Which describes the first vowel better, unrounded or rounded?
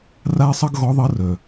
unrounded